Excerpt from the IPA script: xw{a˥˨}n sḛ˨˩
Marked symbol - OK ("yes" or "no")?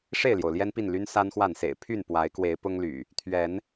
yes